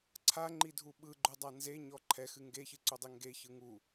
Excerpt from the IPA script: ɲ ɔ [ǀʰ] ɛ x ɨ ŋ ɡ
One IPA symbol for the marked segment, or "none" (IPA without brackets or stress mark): ǃʰ